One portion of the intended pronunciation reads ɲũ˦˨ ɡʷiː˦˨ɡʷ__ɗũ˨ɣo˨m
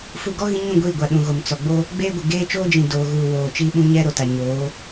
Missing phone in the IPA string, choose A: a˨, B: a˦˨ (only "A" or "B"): A